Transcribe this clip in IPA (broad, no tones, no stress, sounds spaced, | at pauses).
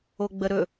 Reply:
o ɡ͡b ə ɾ ɵ